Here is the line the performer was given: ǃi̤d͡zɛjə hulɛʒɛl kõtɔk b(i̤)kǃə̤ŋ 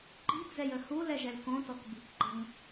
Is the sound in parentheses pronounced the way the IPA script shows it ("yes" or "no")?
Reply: yes